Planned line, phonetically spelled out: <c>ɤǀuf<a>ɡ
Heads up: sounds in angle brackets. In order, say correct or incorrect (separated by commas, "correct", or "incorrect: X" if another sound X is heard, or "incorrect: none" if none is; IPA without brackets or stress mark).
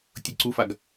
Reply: incorrect: tʲ, correct